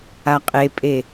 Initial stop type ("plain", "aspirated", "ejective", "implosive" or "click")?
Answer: ejective